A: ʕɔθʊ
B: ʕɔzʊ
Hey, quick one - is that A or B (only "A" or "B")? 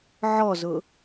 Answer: B